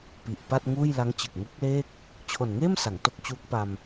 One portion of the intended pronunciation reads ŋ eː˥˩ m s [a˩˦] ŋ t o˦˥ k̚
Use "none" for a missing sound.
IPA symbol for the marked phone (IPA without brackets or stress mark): a˩˦